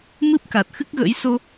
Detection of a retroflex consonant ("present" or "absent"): absent